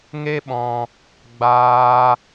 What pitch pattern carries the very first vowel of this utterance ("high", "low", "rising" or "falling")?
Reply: high